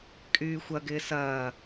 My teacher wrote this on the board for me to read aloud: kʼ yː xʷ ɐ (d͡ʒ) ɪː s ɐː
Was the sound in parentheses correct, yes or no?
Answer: no